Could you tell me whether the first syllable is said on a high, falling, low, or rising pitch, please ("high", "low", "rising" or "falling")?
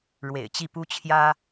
low